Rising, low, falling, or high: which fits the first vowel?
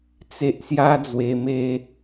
low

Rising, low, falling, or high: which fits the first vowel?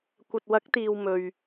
low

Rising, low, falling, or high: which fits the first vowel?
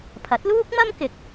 rising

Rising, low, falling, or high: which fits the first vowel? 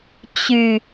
low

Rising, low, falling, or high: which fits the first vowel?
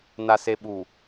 low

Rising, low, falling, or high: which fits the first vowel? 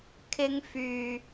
high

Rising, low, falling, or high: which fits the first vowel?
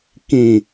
low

